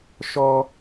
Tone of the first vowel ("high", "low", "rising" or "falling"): high